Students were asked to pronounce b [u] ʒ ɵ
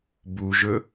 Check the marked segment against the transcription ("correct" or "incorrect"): correct